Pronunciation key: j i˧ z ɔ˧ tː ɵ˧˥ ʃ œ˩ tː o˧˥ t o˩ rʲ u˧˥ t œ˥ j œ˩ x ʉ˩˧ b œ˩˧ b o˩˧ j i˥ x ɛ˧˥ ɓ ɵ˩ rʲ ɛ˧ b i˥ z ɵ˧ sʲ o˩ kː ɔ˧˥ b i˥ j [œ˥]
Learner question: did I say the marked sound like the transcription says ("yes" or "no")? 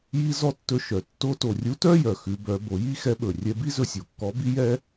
no